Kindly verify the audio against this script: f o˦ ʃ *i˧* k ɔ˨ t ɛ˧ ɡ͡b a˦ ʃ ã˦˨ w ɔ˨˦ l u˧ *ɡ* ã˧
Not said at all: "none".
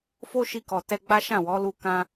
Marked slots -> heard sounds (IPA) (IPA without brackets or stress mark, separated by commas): i˧, k